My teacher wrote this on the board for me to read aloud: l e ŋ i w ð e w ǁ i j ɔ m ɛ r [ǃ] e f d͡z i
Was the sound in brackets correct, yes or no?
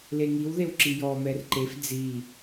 yes